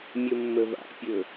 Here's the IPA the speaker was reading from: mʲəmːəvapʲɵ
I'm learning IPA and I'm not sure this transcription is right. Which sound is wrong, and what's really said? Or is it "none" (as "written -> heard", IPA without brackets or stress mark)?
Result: a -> a̰